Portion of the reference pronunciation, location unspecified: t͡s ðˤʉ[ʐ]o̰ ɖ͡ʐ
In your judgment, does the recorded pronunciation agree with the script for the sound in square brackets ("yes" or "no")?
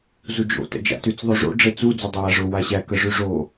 yes